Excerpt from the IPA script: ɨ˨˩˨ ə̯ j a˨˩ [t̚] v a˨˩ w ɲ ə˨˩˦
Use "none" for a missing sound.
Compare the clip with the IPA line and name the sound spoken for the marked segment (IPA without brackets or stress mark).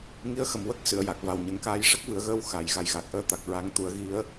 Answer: k̚